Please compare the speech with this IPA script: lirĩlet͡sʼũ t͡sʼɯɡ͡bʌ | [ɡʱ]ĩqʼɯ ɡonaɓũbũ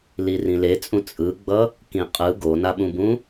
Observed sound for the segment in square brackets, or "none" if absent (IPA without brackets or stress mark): k